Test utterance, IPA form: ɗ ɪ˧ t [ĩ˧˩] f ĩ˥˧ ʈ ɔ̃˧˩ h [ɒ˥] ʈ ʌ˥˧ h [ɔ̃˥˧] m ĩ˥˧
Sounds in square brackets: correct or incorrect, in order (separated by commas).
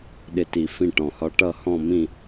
incorrect, correct, correct